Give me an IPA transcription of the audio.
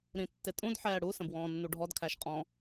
ɾ ĩ tː ɪ tʼ ũ d ħ ɛː ɽ u s ə̃ b w ɔ̃ː nː u ɖʱ ɔ d kʰ æ ʃ qʼ ɔ̃

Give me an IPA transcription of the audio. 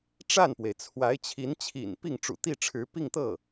ʈ͡ʂ a˥˩ n p w e˩ ɪ̯ t͡sʰ w a˧˥ ɪ̯ t͡ɕʰ i˧˥ n t͡ɕʰ ḭ˨˩ n p i˥˩ ŋ ʈ͡ʂ ṵ˨˩ t̪ i˥˩ ʈ͡ʂʰ ɻ̩˧˥ p i˥˧ ŋ t̪ ɤ˥˩

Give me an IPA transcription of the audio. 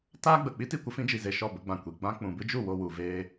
t aː˦ ɡ͡b ə˨ k͡p i˦ t i˦˨ kʷ ə˦ f ĩ˨˦ d͡ʒ i˨ z e˧ ʃ ɔ˦˨ b ə˨˦ ɡ͡b ã˨ kʷ i˨ ɡ͡b ã˦ k͡p ũ˨ b ɨ˦ d͡ʒ u˦˨ w o˧ w u˨ v eː˧

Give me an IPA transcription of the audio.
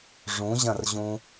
ʐ ũ ʑ ɐ̃ r ʑ ũ

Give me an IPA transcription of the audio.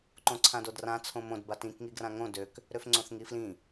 ǃ õ ǀʰ ã d o d r ã t͡sʰ õ m õ d b a t ĩ k ŋ i ɡ r ã ŋ õ d ø k | ɾ ø f ŋ͡ǀ õ θ ŋ i f l ĩ

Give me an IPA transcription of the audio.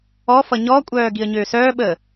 ɔ f ʌ ɲ ɔ kʷʼ œː ɡ i ə̯ ɲ øː s œː ɓ əː

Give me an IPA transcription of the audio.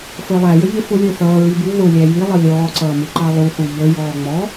f ə˞ lˠ æ j ə ʎ ɪ f ʊ lʲ ə˞ θ ʌː ɹ i b u ð ʊ lʲ æ j i lˠ ʌ lʲ ɔː ǀ ʌː m u ǃ ɑ lˠ u θ u ʎ ə j ɔː ŋ͡m ɔ

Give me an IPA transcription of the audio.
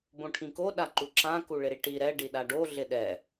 b õ ʈʰ ĩ k o ɗ a ǃ u ǁ ã k u ɭ ɪ ɾ i ʈ i ɾ ɛ ɖ i ɗ a ɖ o ɮ ɪ ɗ ɛ

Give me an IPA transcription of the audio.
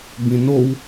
b ĩ n o w

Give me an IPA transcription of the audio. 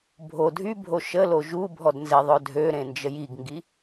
bʱ o dʱ y bʱ o ʃ ə l o ʒ u bʱ ɔ d n z e ðˤ œ dʱ ø ɾ ẽ n d͡ʒ ə j i ɡ ŋ ɡ i

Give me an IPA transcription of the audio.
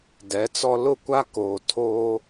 d ɛ˨˦ t͡s ɔ˦ l ʊ˦˨ kʷ a˦ k oː˨ tʰ oː˦

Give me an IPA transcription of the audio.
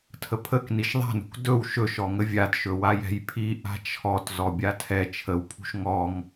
tʰ ə pʰ ə k n i ʃ ðˤ a̤ n ṳ k d ɵ w ʃ ɵ ʃ ɔ ŋ ə vʲ a d ʃ ɵ w a j ɛ̤ j pʰ i ʔ a̤ t͡ʃʰ ɔ t z ɔ bʲ a tʰ ɛ t͡ʃʰ ə w pʰ ṳ ʃ ŋ ɔ ŋ

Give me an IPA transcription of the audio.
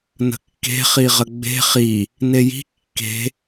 n ə̤ kː e̤ χ i ʁ ə ɡ͡b e̤ χ i | n e j i̤ kː e̤

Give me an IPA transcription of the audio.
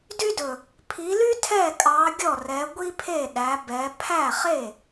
d y˥ d ɵ˨˩ | pʰ i˨˦ l y˥ tʰ ɛ˥˩ kʼ ɑ˨˦ ɡʲ ɔ˥˩ r ɛ˨˦ ɡʷ i˥ pʰ e˥˩ ɗ æ˨˦ b ɛ˨˦ pʰ æ˥˩ χ e˥˩

